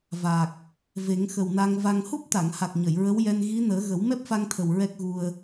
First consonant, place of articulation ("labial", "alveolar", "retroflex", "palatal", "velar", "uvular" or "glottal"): labial